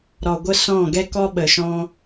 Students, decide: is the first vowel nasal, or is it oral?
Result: oral